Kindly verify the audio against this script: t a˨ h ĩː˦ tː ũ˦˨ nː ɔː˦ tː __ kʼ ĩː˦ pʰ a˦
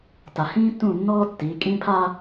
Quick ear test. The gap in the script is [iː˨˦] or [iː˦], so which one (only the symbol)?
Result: iː˨˦